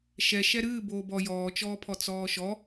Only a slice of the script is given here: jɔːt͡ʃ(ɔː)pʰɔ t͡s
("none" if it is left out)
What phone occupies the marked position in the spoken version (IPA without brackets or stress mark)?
ɔː